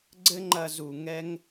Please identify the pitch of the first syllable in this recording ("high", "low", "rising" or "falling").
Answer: high